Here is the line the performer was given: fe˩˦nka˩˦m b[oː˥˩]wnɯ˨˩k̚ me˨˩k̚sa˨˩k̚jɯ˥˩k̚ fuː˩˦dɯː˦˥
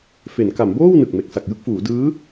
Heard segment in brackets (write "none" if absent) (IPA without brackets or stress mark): oː˥˩